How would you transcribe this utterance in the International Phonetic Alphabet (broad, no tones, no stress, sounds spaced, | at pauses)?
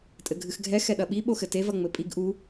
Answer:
tʼ ɘ ɡʱ ɨ x ɡʱ ɛ x ɛ ɗ ɐ ɓ i ɓ o x ɘ t e v ɐ ŋ͡m ɘ pʼ i ɡ ʔ u